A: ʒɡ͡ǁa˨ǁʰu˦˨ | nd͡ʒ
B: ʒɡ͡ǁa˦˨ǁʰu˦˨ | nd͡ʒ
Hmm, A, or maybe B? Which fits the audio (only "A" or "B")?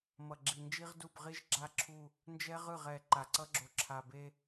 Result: B